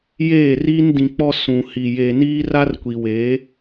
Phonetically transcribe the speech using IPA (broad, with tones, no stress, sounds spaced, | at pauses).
j eː˦˨ r iː˦ n d ĩ˨ k͡p ɔ˦ s ũ˨ h i˨ j e˨ n iː˦ r a˦ r kʷ i˨ w eː˨˦